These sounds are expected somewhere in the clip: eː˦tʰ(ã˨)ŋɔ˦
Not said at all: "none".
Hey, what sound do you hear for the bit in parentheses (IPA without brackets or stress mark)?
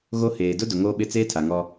a˨